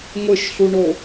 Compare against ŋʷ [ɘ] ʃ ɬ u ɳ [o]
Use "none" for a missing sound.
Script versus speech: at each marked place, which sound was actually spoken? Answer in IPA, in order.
ɘ, o

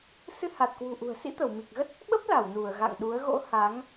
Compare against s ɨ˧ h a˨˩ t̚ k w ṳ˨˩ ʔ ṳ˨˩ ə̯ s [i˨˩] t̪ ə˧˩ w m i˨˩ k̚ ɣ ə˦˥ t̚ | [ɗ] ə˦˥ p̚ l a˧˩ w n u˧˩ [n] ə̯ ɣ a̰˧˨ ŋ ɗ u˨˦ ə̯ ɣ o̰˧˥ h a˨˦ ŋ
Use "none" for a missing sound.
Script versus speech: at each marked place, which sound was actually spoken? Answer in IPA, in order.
ḭ˧˥, ɓ, none

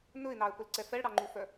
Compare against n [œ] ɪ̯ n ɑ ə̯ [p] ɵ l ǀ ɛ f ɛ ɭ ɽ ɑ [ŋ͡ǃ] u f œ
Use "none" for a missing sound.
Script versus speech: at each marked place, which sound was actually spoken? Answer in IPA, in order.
ɵ, p, ŋ͡ǃ

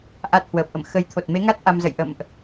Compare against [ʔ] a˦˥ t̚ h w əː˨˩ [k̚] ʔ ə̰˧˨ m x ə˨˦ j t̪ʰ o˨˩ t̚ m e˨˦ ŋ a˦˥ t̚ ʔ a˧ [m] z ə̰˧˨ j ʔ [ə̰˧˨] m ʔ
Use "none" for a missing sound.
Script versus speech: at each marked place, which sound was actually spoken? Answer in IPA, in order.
ʔ, p̚, m, ə̰˧˨

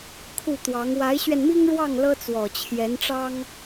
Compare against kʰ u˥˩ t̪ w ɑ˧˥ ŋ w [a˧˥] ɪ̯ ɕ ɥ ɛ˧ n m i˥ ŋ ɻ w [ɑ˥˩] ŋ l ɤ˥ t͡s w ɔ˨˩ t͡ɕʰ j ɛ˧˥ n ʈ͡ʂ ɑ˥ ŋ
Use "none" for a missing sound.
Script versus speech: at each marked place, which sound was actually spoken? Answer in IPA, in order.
a˧˥, ɑ˥˩

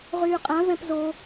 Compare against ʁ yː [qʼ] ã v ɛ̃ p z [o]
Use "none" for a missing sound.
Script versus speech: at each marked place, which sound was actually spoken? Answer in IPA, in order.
qʼ, o

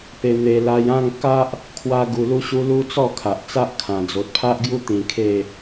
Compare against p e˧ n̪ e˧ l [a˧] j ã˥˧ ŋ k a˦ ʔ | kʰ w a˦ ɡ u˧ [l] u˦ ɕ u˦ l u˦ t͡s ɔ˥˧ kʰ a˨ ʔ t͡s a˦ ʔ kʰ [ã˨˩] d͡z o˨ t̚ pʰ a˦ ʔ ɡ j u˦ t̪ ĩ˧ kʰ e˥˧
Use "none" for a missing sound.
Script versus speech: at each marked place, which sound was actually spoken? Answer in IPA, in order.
a˧, l, ã˨˩

